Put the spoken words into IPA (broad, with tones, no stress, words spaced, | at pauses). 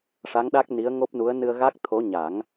ʂa˧˥ŋɗa˦˥k̚ni˧˥ə̯ ŋo˦˥p̚nu˧˥ə̯ nɨ˧ə̯ɣa˦˥k̚t̪ʰo˧˥ ɲa˨˩˦ŋ